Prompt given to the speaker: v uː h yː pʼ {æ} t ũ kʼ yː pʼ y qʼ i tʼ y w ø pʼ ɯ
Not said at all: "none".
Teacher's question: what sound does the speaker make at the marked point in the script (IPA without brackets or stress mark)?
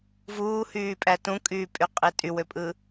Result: æ